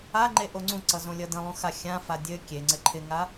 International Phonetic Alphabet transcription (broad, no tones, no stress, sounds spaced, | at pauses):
a ŋ͡ǃ e ʔ o ŋ͡ǀ ũ ǀ ʌ z õ lʲ ʌ d ə̃ lˠ ũ x a xʲ ã f a dʲ ɘ kʲ e ŋ͡ǀ ɘ ǃʰ ɪ ŋ a